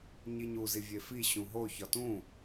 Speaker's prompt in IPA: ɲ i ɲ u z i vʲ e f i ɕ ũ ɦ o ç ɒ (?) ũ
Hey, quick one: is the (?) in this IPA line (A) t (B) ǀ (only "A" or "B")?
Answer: A